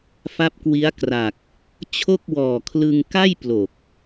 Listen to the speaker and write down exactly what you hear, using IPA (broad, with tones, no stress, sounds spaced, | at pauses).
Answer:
f a˦˥ p̚ k w i˦˥ a̯ k r a˨˩ k̚ | t͡ɕʰ o˥˩ k̚ w ɔː˨˩ kʰ l ɯ˧ ŋ k a˥˩ j p l o˨˩ k̚